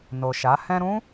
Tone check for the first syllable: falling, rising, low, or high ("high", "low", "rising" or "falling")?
low